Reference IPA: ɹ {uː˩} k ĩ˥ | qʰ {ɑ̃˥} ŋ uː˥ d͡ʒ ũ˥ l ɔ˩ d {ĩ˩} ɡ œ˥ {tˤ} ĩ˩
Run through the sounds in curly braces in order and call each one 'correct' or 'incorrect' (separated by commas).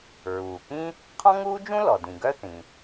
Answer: correct, incorrect, correct, incorrect